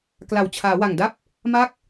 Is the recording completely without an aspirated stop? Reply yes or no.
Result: no